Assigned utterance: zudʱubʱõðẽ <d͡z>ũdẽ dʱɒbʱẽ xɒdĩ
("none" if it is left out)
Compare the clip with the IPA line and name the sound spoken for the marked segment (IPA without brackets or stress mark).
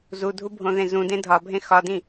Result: z